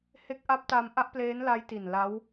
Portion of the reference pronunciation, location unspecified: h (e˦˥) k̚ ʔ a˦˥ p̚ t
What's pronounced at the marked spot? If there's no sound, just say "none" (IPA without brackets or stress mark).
e˦˥